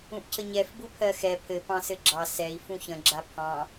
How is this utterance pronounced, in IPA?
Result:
ũ ʔ cʰ ə ɲ ɛ f b u pʰ ɜ x ɛ pʰ ɘ p ɑ̃ s ɘ ɡ͡ǁ ɑ s ɛ i̯ f ũ ç ə̃ ɡ͡ǁ a pʰ ɑ̃

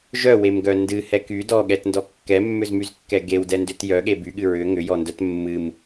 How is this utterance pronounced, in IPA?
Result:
ʒ œ w e m ɡ œ n d ɨ h ɛ k y d ɔ ɠ ɛ t n d ɔ kː ɛ mː ʏ z m y z kː ɛ ɡ e w d ɛ n d ʏ t j œ ɠ e b y ɠ ɨ ɹ ʏ ŋ ʏ j ɔ n d œ t mː ɨ m

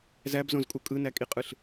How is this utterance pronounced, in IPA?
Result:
z æ b z õ z kʼ u kʼ ɯ n æ kʼ i qʼ ɯ ɬ

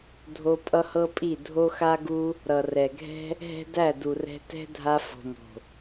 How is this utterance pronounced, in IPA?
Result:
dʱ o˧ pʼ ʌ˦ h ɤ˦ pʼ i˦˨ dʱ o˧ x a˧ ɡ u˧ | ɾ ʌ˨ r ɛ˨ ɡʱ ɛ̤˦ | ɦ ɛ̤˦ d æ˦˨ d u˨ r ɛ̤˧ t ɛ̤˦ dʱ a˧ f o̤˨ m o̤˨

